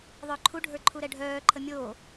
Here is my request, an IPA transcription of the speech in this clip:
ðˤ œ ǃʰ u ɖʱ ə˞ ǃʰ u ɾ ɛ ɖʱ œː ǃʰ ə mʲ oː

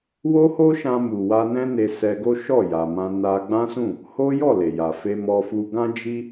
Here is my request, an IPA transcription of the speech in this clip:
w o˦ h o˦ ʃ ã˧ m u˨ w a˧ n ɛ̃˦ n e˧ s ɛ˧ ɡ o˦ ʃ ɔ˦˨ j a˨ m ã˧ n a˦ ɡ͡b ã˦ s ũ˦˨ | h o˦ j ɔ˦˨ l e˨ j a˨ f e˧ m ɔ˧ f u˧ ɡ ã˦ d͡ʒ i˦

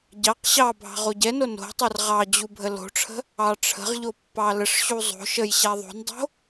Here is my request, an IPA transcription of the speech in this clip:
ɟ ɑ q ɕ ɑ bʱ ɑ̤ ʁ o ɟ ɛ n o n o̤ tˤ ɛ r ʁ ɑ d͡ʑ u bʱ ə l o̤ ʈ͡ʂʰ ə̤ | ɑ ʈ͡ʂʰ ə̤ ʁ ʎ o pː ɑ l ə ʂ ɕ u zˤ o̤ ʃ ə j ɕ a ðˤ o̤ n dˤ o̤

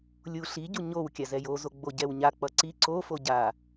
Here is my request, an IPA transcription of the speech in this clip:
lʲ u ɬ i ɟ u ɲ o w kʲ a z ɛ j o z o ɡ͡b o ɟ ɛ w ɲ a k͡p ʌ ǀ i ǀ o f o ɟ a

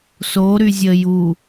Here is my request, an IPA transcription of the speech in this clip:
s o ɾ y zʲ ə j u

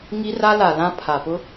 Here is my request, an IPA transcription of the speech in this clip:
ŋ i˦ r a˦ l a˨ l ã˦ pʰ a˨ p ʊ˦

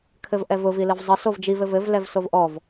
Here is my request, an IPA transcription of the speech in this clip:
kʰ ɘ v ʔ ɛ v ʊ v i l ɘ v zˤ ə s o v d͡ʒ i v ɘ v ɘ v l ɛ v s o v ʔ ɔ v

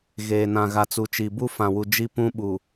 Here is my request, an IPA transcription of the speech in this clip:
ɣ eː˨ n ã˨ ɣ a˨ t͡s u˨ t͡ʃ i˨ b u˦ f ã˨ w u˨ d͡ʒ i˦ p ũ˦ ɓ u˨

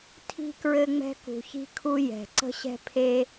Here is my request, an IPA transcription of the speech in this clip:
tʰ i̤˧ k ɹ ɘ˧ ŋ͡m ɛ̤˥ k ṳ˧ ç i̤˥ kʰ u˥ j ɛ̤˧ ǀ ə̤˥ ɕ ɛ̤˥ pʰ e˥

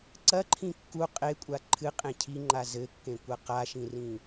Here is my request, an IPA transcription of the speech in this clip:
ǀ ɐ ǃʰ ĩ kː u qʼ e kʷʼ a ǃʰ ɨ qʼ ẽ cʰ i ŋ͡ǃ a z ɘ kː ẽ kʷ ɐ q a ʃ ĩ r ĩ

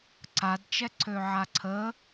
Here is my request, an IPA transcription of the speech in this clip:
ǀ a d t͡ʃ ɛ ǀʰ ø ʕ a ǀʰ ə

